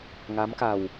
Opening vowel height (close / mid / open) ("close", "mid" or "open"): open